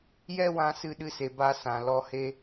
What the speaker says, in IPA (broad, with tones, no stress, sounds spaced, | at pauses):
j ɛ˦ w ã˧ s ɨ˧ ɗ ɨ˧ s e˨ b a˦ s ã˨ l ɔ˧ h e˦